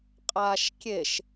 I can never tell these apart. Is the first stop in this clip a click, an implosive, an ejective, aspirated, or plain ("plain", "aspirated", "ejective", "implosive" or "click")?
ejective